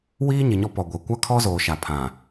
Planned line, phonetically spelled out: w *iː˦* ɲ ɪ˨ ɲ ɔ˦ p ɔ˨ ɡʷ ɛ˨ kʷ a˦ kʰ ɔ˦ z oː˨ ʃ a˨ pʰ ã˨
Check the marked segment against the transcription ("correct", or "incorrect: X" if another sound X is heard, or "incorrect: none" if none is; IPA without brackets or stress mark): correct